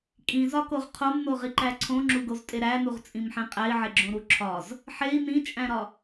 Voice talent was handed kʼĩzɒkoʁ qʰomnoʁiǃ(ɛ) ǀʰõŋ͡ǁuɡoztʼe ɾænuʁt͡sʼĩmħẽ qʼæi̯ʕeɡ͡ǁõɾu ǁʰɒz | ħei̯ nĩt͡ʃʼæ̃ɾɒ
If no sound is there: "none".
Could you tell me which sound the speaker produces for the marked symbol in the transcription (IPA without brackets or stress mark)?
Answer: æ